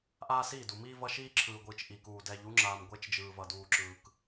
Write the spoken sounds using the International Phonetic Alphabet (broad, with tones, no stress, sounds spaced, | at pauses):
ʔ aː˦ s iː˦˨ d u˨ m iː˦ v ʌ˦ ʃ iː˦ ǁʰ ɯː˨ ɡʷ ɯː˨ t͡ʃ ʔ i˨ k uː˨ d ɛ˨ ʎ u˨˦ ŋ͡ǁ aː˨ m ɡʷ e˦ t͡ʃ d͡ʒ ɯː˨ v ʌ˨ d uː˨ ǁ ɯː˨ k